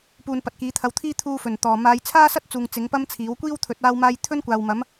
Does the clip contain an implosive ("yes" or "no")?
no